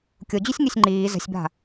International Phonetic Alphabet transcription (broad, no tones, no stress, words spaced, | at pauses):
kʲod͡ʑysʲŋysʲ ŋ͡ǃiː zə̤sʲba̤